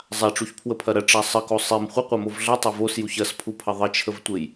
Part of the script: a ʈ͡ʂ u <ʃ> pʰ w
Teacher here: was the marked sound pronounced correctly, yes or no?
no